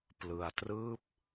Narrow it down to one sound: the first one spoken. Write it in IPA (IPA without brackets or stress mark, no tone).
p